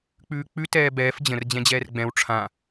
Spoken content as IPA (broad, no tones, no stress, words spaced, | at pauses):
k͡pʉːk͡pʉ tɛːbɛːf d͡ʑə̃r d͡ʑɛ̃d͡ʑɛːrɡ͡bɛ̃w ʈ͡ʂʰã